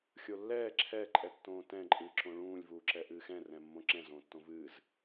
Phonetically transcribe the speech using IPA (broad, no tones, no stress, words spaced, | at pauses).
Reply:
xʲolːɛː ǁʰɛ ǃʼɛtːõːtɛ̃ ǃʼɨːǁõɭũːlʲ vuːǁɛʔɨːxɛ̃ rɛ̃mːõǁɛ̃ zõːtːõvɨːz